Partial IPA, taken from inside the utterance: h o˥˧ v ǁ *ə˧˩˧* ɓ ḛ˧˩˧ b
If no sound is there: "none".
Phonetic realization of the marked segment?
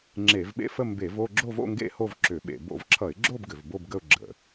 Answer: ʏ˧˩˧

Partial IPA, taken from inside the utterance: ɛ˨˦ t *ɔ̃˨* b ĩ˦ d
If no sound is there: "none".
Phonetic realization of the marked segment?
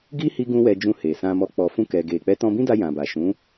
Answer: ɔ̃˧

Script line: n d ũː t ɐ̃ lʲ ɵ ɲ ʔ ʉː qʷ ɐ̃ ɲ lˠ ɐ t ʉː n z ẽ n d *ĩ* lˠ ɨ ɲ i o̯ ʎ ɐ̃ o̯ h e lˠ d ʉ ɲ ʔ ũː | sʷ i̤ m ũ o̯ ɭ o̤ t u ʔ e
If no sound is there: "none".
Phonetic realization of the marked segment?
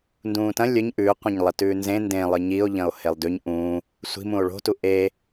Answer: ẽ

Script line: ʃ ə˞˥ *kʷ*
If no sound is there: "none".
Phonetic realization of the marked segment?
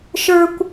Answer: kʷ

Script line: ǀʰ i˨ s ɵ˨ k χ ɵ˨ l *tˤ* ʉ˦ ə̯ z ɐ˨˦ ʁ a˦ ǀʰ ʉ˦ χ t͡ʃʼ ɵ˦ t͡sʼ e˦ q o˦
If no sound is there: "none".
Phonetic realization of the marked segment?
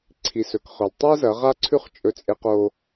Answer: tˤ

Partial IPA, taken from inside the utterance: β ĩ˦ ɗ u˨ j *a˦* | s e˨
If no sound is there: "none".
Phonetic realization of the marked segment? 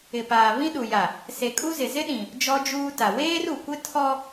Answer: a˨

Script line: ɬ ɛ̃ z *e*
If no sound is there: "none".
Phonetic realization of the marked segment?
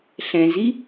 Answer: i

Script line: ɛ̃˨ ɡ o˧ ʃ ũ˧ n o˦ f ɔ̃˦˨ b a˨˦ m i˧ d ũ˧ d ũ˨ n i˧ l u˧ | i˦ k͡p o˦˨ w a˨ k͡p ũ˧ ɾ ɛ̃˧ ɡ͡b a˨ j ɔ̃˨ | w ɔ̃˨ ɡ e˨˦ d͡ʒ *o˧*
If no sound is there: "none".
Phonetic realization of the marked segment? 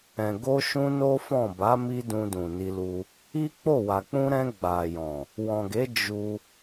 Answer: u˧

